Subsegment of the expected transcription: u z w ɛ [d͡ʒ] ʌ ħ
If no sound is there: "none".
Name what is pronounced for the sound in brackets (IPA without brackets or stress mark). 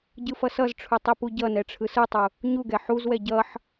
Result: ɟ